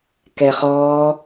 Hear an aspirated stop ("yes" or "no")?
no